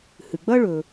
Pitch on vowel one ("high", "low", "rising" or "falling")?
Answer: low